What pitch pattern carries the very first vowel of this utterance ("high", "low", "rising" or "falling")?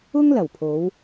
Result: high